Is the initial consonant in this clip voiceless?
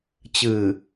yes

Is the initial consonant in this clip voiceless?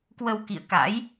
yes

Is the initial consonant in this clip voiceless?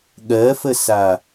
no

